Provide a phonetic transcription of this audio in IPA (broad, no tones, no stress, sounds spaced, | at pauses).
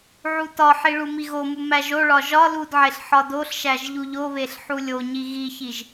ʕ u t ɒ ħ i ɭ u m i ɣ o m u m æ ʒ o ɭ ɒ ʒ ɒ l u d ʕ e ɬ ħ ɒ d o ɬ ʃ æ ʒ ʎ u ʎ o β e ɬ ħ u lʲ o ɲ i ɣ i ç i ʒ